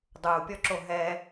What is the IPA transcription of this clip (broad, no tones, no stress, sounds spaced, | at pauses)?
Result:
dˤ uː pʲ ɔ ǁ o ɦ ɛ